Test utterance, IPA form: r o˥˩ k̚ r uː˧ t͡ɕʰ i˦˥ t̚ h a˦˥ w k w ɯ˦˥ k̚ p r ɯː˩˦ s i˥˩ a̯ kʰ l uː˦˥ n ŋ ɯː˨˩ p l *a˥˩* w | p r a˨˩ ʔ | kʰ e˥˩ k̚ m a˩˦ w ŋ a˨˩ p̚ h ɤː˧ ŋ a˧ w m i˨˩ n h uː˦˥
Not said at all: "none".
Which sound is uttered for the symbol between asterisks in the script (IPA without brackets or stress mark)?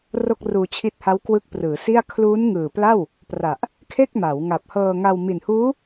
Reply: a˥˩